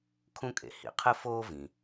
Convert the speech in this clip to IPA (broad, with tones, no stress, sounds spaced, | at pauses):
kʰ ũ˥ kʼ ḛ˩ h ḭ˩ qʰ ɨ˥ f oː˥ v ĩ˩